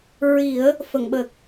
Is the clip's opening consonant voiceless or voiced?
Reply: voiced